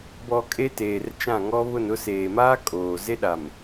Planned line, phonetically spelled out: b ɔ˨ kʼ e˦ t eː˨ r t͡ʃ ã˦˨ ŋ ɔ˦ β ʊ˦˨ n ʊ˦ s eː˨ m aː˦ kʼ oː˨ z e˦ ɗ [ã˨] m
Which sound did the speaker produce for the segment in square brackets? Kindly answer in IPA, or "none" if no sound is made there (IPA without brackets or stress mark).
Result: a˨